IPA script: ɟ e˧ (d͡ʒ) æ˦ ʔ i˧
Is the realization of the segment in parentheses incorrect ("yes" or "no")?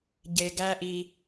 yes